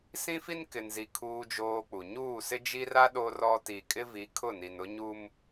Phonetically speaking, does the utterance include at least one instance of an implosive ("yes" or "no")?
yes